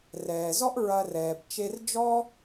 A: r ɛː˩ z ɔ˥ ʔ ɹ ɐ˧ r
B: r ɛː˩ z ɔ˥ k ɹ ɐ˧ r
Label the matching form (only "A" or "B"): A